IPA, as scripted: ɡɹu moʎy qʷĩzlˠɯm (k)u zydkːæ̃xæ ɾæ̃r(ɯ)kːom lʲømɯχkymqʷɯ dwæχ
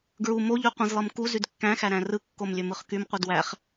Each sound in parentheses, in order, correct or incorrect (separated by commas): correct, correct